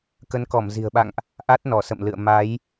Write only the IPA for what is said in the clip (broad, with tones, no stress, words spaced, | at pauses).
kə˨˦nkɔ˧˩m zi̤˨˩ə̯ɓa̰˧˨ŋʔ | ʔa˦˥t̚nɔ˧˩sə̰˧˨m lɨ̰˧˨ə̯ ma˨˦j